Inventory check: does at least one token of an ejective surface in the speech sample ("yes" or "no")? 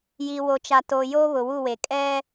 yes